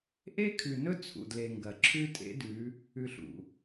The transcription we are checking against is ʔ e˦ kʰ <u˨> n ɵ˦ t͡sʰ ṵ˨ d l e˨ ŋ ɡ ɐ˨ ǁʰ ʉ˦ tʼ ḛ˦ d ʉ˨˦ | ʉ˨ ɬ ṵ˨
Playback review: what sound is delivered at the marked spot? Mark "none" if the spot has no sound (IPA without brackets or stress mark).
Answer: ʉ˨